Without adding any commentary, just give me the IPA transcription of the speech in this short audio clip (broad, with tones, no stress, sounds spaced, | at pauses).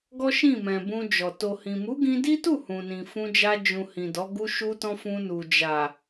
ɡ ɔ˦ ʃ ĩ˦˨ m ɛ̃˨ b ũ˧ d͡ʒ ɔ˨ t o˨ h ĩ˨ m u˨˦ ɡ ĩ˧ d i˦ t u˦˨ h ũ˨ n ĩ˨ f ũ˧ d͡ʒ a˧ d͡ʒ ũ˨ h ĩ˨ d ɔ˨˦ ɡ u˧ ʃ u˧ t ɔ̃˧ f ũ˧ n u˨ d͡ʒ a˨